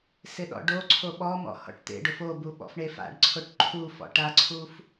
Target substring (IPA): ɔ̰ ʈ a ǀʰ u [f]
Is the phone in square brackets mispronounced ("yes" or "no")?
no